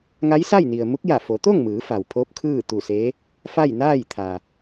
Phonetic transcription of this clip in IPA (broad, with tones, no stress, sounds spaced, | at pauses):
ŋ a˧˥ j s a˥˨ j n i˩ ə̯ m u˧˥ k̚ j a˧˩ f o˩˧ t̪ o˥˨ ŋ m ɯː˩˧ f a˩ w pʰ o˧˥ p̚ kʰ ɯː˥˨ t̪ u˧˩ s e˧˥ | f a˥˨ j n aː˥˨ j t̪ʰ a˩